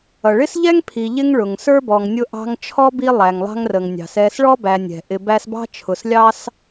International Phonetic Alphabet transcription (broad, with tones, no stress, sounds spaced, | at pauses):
ʌ˩ ɭ ɪ˥ s ʎ ɛ˥ ŋ pʰ i˨ ʎ ɪ˦ ŋ ɭ ʊ˩ ŋ s ə˞˥ b ɔ˨ ŋ nʲ ʊ˦ ʔ ɑ̤˦ ŋ t͡ʃʰ ɔ˥ b i˦ lˠ æ˩ ŋ lˠ ɑ̤˦ ŋ r ə˩ ŋ nʲ ɑ̤˩ s ɛ˨ s ɭ ɔ˥ b æ˨ nʲ ɛ̤˩ ʔ ɪ˨ b æ˦ s b ɑ̤˥ t͡ʃʰ ʊ˨ s lʲ ɑ˥ s